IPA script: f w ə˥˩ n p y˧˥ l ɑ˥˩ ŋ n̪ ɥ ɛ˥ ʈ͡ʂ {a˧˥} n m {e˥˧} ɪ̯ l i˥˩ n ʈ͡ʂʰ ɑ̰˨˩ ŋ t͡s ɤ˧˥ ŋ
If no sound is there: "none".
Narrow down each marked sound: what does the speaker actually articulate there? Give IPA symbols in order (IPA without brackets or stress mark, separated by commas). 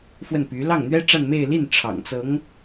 a˥˧, e˥˧